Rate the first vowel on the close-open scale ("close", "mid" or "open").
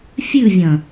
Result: close